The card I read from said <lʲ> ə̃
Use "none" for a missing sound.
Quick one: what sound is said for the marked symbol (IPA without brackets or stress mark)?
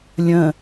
lʲ